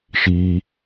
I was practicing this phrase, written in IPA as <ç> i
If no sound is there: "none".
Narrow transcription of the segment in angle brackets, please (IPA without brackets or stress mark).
ʃ